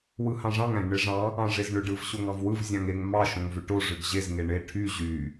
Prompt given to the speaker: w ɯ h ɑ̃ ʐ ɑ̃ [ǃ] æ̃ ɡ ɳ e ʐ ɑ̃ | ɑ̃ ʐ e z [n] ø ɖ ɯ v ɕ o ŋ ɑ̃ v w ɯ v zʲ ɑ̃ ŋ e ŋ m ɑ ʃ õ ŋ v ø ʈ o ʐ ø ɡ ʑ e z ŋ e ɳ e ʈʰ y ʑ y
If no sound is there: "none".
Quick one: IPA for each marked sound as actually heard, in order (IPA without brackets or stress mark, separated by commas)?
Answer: ŋ, ɳ